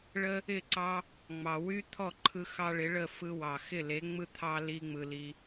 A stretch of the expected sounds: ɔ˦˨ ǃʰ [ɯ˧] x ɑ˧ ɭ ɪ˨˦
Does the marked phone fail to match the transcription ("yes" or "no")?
no